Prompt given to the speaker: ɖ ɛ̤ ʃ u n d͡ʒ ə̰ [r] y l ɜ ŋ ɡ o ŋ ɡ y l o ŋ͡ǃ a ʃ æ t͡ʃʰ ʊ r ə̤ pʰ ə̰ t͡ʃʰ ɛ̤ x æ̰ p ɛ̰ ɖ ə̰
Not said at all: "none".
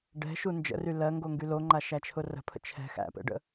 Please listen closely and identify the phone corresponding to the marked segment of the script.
r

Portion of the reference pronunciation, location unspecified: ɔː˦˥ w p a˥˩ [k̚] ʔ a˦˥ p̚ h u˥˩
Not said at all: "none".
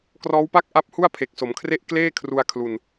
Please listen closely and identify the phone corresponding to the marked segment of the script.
k̚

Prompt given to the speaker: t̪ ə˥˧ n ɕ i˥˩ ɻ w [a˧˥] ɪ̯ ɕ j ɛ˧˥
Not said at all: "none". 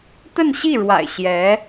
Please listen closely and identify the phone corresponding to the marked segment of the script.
a̰˨˩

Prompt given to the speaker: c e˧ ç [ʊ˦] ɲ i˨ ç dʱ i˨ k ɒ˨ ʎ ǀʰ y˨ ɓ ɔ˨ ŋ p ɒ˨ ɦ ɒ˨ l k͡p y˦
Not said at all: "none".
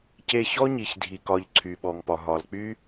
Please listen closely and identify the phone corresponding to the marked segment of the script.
ɔ˦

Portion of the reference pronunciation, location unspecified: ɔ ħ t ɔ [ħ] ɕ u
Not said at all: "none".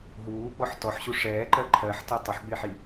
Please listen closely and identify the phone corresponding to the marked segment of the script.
ħ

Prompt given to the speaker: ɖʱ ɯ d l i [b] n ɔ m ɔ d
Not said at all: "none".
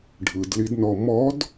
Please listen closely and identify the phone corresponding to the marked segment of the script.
d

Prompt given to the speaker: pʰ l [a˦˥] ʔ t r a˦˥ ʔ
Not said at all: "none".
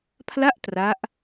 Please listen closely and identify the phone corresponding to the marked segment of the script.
a˥˩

